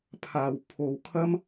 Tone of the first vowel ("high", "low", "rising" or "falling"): low